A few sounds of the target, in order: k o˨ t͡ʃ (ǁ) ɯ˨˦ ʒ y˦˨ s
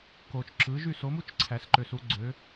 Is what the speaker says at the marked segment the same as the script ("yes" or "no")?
yes